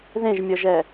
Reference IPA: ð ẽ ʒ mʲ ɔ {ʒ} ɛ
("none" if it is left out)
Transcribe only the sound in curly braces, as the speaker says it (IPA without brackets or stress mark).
ʒ